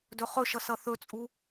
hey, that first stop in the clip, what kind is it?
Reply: plain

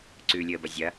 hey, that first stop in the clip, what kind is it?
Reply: click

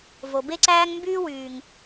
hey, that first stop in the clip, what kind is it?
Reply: plain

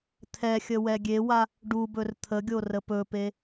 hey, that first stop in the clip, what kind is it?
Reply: aspirated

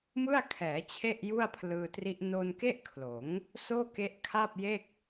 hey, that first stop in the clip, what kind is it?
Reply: aspirated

